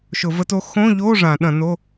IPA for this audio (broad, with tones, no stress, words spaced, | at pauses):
ʃʊ˧˩˧və˧˥to˧˥ xõ˧˥˧ʎo˧˥˧ ʐã˧˩˧ɗɐ̃˧˩˧no˧˥˧